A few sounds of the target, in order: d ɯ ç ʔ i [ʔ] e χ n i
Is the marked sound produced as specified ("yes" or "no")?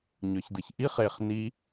no